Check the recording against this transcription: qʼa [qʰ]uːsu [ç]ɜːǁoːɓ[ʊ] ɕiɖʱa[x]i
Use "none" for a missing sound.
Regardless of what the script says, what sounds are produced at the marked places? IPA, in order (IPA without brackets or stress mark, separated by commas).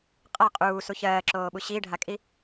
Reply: qʼ, ç, u, kʼ